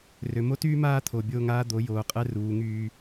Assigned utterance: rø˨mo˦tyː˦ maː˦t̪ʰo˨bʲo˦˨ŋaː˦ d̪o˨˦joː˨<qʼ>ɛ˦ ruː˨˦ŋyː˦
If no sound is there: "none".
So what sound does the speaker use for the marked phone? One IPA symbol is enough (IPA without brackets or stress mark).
qʼ